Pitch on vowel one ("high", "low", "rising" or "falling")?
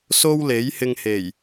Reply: high